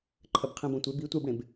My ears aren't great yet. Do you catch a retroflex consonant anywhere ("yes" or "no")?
yes